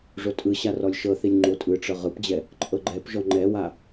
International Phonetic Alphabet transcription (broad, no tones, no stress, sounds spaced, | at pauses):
ʐ o tʼ ɯ ɕ a r ɔ lʲ ʃ ɤ θ i lʲ ŋ͡ǃ o tʼ ɯ ʈ͡ʂ ɤ ʁ ɯ p d͡ʑ ɛ | ǃʼ ɤ ɡ͡ǃ ɛ p ʒ ɔ ŋ͡ǃ ɛ w a